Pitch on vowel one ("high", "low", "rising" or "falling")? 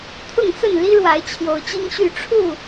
falling